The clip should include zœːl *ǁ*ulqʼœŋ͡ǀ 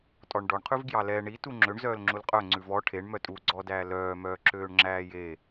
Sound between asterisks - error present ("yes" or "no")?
yes